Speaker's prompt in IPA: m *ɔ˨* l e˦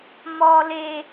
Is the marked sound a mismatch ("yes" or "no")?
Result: yes